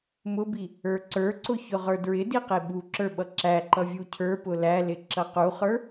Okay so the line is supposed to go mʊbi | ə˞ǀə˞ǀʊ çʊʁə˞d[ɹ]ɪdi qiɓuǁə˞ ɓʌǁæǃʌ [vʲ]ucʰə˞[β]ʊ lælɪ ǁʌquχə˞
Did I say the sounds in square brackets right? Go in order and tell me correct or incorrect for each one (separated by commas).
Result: correct, correct, incorrect